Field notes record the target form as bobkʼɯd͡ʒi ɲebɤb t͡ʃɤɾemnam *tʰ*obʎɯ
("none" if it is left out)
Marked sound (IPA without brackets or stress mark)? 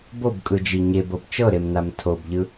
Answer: tʰ